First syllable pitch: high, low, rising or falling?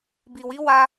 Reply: low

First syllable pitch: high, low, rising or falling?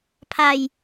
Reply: low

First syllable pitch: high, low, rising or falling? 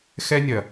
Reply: high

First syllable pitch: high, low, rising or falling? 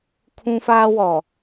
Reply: high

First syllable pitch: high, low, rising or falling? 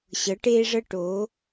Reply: rising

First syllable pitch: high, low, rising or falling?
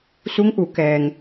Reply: rising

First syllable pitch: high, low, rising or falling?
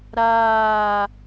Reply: falling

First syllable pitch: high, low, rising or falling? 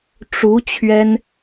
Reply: rising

